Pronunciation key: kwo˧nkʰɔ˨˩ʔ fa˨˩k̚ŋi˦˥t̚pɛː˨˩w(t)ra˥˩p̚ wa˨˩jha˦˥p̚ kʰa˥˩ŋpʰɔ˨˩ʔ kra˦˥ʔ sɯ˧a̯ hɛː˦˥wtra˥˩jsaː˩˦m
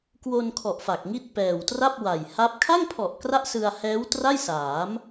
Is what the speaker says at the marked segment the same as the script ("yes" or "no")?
yes